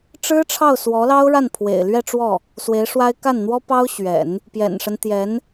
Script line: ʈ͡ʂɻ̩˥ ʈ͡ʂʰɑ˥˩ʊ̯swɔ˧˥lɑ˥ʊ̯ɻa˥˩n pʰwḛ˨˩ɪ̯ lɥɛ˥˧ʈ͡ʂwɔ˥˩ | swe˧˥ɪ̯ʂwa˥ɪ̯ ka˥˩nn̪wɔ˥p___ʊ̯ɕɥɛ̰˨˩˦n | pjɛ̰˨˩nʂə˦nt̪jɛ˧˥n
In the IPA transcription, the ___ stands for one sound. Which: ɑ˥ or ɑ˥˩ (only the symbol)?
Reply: ɑ˥